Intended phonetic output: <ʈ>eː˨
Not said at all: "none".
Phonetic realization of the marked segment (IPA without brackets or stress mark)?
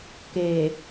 k